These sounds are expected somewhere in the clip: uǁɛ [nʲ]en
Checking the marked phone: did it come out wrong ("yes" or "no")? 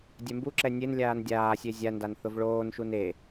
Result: no